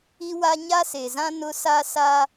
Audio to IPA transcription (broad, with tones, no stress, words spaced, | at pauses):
i˦wa˦ ɲa˦se˨zã˦ nʊ˦sa˦sa˦